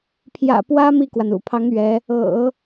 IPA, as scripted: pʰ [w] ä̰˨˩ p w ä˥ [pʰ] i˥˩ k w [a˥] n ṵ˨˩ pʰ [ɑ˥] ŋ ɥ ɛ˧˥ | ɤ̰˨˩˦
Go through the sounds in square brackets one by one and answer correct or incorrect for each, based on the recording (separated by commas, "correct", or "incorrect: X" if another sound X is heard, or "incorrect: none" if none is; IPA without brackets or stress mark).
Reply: incorrect: j, incorrect: m, incorrect: a˩, incorrect: ɑ˧˥